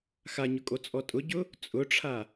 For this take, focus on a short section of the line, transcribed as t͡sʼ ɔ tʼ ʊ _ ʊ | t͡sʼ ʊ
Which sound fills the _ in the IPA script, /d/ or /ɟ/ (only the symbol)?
ɟ